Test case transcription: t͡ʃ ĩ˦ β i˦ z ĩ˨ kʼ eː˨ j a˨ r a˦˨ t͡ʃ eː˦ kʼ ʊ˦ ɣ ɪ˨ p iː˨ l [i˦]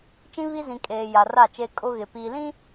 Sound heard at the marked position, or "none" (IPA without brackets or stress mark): ĩ˦